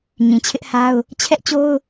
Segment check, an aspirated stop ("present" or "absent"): present